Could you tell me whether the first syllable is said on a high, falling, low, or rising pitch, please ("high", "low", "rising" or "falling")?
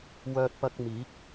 high